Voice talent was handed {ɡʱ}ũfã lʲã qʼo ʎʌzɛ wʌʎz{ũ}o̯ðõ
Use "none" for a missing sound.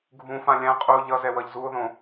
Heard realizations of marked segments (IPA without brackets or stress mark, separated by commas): ɡʱ, u